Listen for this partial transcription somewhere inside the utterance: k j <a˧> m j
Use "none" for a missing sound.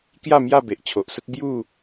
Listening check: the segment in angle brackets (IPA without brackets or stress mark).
a˥˧